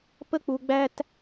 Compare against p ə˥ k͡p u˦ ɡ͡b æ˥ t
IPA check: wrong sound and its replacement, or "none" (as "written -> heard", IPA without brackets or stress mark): none